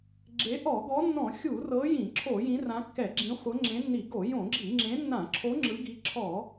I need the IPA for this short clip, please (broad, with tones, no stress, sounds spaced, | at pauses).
ɡ͡ǁ e˨˦ ʔ ɔ˧˩˧ ɡ ɔ˨˦ nː ɔ̃˧˩˧ xʲ u˧˩˧ r ɤ˨˦ j ĩ˧˩˧ ǁʰ o˧˩˧ j ĩ˨˦ r ã˨˦ kː ɛ˧˩˧ ɡ͡ǁ ĩ˨˦ χʷ ɤ˨˦ ŋ͡ǁ ẽ˨˦ nː i˧˩˧ ɡ o˧˩˧ j õ˧˩˧ ɡ͡ǁ i˧˩˧ ŋ͡ǁ ẽ˨˦ nː ã˧˩˧ ǁʰ o˨˦ ŋ͡ǁ ɯ˨˦ ɡ i˨˦ ǁʰ ɔ˧˩˧